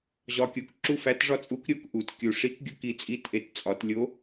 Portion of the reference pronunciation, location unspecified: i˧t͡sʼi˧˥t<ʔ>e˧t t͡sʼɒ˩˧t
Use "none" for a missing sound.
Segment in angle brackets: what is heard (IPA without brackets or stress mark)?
ʔ